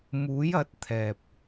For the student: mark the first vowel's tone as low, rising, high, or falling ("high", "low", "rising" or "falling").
rising